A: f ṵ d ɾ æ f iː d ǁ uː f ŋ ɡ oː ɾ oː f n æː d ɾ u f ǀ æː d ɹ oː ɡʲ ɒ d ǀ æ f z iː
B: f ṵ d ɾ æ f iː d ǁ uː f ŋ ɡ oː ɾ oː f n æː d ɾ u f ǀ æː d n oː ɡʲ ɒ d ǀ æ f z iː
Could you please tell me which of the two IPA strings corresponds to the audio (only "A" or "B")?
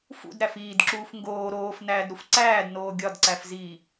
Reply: B